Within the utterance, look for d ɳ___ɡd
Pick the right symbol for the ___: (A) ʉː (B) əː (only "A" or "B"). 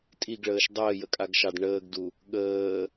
B